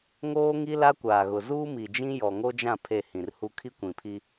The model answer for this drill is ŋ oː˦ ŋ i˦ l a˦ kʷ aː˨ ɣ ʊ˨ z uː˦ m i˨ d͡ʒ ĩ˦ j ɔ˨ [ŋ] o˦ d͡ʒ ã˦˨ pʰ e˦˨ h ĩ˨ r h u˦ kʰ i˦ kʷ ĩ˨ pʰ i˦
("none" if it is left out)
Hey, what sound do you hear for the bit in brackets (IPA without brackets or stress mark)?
ŋ